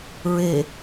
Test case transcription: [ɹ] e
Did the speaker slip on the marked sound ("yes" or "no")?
no